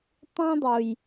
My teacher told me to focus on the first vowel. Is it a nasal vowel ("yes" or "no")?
yes